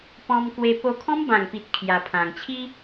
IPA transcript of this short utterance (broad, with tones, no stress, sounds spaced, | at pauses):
p ɔ̃˧ m k w e˧ p o˧ kʰ ɔ̃˦ m b ã˨˩ ŋ p i˨ t̚ kʰ j a˧ pʰ ã˧ ŋ t͡ɕʰ i˦